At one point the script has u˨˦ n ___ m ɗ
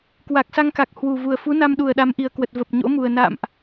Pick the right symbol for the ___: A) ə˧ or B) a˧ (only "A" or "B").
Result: B